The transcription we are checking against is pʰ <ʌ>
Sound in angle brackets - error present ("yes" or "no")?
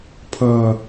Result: no